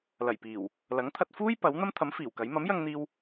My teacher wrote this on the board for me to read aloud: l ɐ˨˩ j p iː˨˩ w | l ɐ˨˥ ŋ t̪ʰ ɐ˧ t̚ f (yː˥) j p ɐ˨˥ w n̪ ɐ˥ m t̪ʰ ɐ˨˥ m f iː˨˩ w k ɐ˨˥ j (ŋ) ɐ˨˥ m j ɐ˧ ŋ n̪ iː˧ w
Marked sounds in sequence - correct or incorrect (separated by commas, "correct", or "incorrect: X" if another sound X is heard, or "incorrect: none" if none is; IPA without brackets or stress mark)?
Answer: incorrect: uː˥, incorrect: m